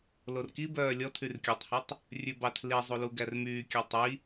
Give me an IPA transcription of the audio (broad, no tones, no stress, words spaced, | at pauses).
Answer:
lorkibœː lʲɔ tʰyrkʲutˤhɵtˤ | rʲʉbɑtʰlizˤu luɡærmyːkʲɑ tˤi